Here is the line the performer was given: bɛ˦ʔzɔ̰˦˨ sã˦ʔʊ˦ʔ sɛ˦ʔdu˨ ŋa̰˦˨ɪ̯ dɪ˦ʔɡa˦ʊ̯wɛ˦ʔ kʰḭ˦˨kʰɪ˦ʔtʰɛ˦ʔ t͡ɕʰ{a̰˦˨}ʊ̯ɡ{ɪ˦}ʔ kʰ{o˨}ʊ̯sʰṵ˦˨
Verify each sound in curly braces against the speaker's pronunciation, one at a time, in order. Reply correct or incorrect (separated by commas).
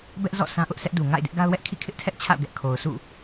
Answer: correct, incorrect, correct